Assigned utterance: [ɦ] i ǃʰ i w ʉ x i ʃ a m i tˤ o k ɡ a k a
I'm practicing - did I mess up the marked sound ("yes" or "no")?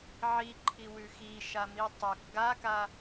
yes